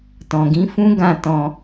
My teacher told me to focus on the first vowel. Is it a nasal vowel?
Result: yes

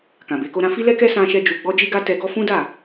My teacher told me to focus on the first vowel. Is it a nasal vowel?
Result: yes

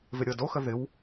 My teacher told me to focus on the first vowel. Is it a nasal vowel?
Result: no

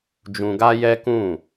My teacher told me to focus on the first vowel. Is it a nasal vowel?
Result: yes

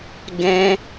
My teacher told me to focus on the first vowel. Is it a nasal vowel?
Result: yes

